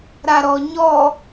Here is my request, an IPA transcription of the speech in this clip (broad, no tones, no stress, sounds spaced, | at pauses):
ɾ a ɾ ɔ ɲ ɔ